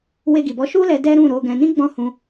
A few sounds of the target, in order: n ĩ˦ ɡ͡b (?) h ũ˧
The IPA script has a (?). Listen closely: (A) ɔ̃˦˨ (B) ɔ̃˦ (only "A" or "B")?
A